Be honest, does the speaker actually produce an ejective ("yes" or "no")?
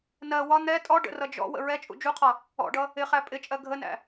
yes